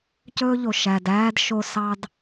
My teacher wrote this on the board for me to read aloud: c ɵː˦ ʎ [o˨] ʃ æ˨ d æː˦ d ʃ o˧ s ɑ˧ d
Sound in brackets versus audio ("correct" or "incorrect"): correct